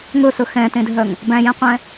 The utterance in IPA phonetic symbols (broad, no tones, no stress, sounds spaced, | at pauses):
ŋ ɵ s ɵ x ɛ̃ t ẽ dʱ œ ŋ | b æ̃ j ɛ̃ qʷ ɛ̃